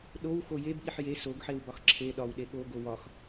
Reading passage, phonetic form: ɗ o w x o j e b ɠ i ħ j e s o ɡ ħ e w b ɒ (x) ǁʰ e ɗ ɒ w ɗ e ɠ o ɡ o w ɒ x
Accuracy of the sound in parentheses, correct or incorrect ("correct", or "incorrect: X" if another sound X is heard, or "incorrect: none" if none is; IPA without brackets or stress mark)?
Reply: correct